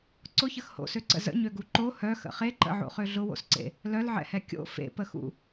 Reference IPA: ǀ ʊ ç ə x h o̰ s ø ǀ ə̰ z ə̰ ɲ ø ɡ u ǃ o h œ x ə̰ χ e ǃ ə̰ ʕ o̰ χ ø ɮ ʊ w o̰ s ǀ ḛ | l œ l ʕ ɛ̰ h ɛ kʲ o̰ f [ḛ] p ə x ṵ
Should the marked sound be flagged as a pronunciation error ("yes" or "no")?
no